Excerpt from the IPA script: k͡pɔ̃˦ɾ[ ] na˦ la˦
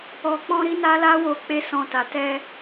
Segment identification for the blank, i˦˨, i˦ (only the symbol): i˦